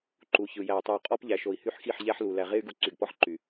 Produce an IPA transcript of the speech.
ǃ u˨ ç ɯ˨ j æ˨ u̯ tˤ y˨ u̯ qʼ ɔ˦ p ʎ æ˨ ʃ o˨ i̯ h y˦ ħ x i˦˨ ħ ʎ æ˦ ħ l u˨ l æ˨ ʁ e˦ y̯ ɡ u˨ ǀ y˨ ɡ p ɔ˦ ħ ǃ y˨

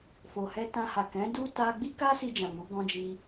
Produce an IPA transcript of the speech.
f o˨ h ɛ˧ t ã˧ h a˨ k ɛ̃˨˦ d u˦ t a˦ ɡ͡b i˦ k a˦ s i˧ d͡ʒ ã˨ m u˨˦ ɡ ɔ̃˦ d͡ʒ i˦

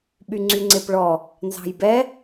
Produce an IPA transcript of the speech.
ɓ y ŋ͡ǀ y ŋ͡ǀ e p ɭ ɔ | n z ɑ̤ j b ɛ

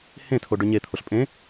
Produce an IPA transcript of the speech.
h ẽ tʰ o ɖ ø ɲ e t̪ʰ o ɬ pʼ ẽ

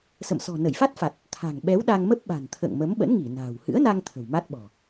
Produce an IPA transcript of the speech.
s ə̰˧˨ m s ɔ̤˨˩ n ə˧˩ j f a˦˥ t̚ f a˨˩ t̚ | t̪ʰ a̤˨˩ ŋ ɓ ɛ˨˦ w ɗ a˧ ŋ m ə˦˥ p̚ ɓ a̤˨˩ n t̪ʰ ə̰ː˧˨ ŋ m ə˨˦ m ɓ ə̰˧˥ n ŋ i˧˩ n a̤ː˨˩ w h ɨ̰˧˥ ə̯ n a˧ ŋ t̪ʰ ə̤˨˩ w m a˦˥ t̚ ɓ ɔ̤˨˩

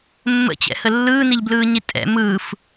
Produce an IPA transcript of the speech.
mː ə̰ t͡ɕ ɛ̰ h ə lː ɯː n i ʎ b l ɯː ɲ i tʼ ɛ̰ m ɯː f

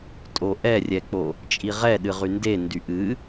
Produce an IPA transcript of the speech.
tʼ o ʔ ɛ rʲ ɛ k͡p o | t͡ʃʼ i ʁ ɛ ɗ ɨ ʁ y n d e n d y ʔ ɨ

